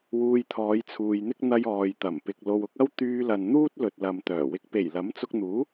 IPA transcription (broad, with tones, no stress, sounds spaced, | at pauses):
w uː˧ j t̪ʰ ɔː˨˧ j t͡sʰ uː˨ j n̪ ɪ˥ k̚ n̪ ɐ˧ j ɔː˨ j t̪ ɐ˨˩ m p ɪ˨ k̚ l o˨ w ʊ˧ k̚ ɐ˥ w t̪ yː˧ l ɐ˨ n n̪ uː˥ t̚ l ɵ˨ t̚ l ɐ˨ m t̪ œː˨˩ w ɪ˨ k̚ p e˨˩ j l ɐ˨˥ m t͡s ʊ˧ k̚ n̪ uː˨˥